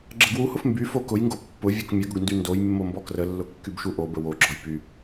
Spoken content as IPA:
ɡ͡ǁəɡwuhʊf mby fokʊjŋɡo pːʊ vʲokmʲəɡʊɡ ndyndojmːo mbɔkrəlːʊ kːybʃuʔobə woɡ͡ǁɔj py

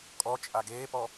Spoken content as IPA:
kʼɔ t͡ʃʼaɡeːpɔ

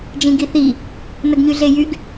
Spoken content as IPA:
d͡ʒĩɡiθi | nəɡɲyɮejyɡ

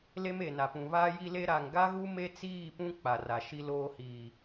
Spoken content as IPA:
le˦me˨na˨pũ˨ βaː˦ ji˦le˦ ɾa˨ŋɡa˦ɣu˦ me˦t͡siː˦˨pũ˦ k͡pa˨ra˨ʃi˦loː˦ hiː˨

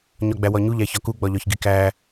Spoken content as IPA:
ɲɒɡ͡bæwɒɲu ʎæçɒku ɡ͡bɒʎɒçɡikæ

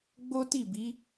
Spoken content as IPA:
ɡ͡bo˦ti˦˨bi˨˦

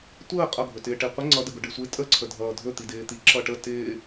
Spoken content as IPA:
tʷəː qʼʌɡʱɵtɪː ʈeqʷə ŋ͡ǀʌdəɡʊ ɖɪsʷɪ tʼəǀʰədʱʌː dʱɵt̪i dɪːt̪i ǁʌʈə tɪː

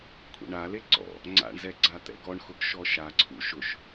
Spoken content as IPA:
kʷʰḛɳale ǀɔ̰ | ŋ͡ǀa̰ɳzɛ ɡ͡ǀat̪ɛ̰ɡɔɳxʊɡ ʃɔʃaǀʰṵ ʃʊʃ

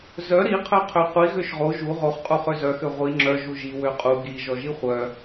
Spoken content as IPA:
zœ ɾi qʰœqʰøqʷi ɣøʃʁo ʒu ʁoχ qʼuχøzœ xøʁʷi ŋ͡ǁœ ʒuʒi wøqʼu ɡi ʒɔʒiχʷœ

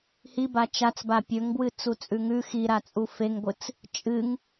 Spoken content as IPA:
hiba t͡ʃat͡sba pʲɵŋbwɨ t͡sut͡sʼʉŋʉ xiɾat͡sʼu feŋɡʷɨt͡s | t͡ʃʼɨŋ

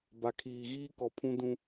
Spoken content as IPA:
ba˨kʰiː˨ɣiː˦ kɔ˨ pʰũ˦ dũ˦

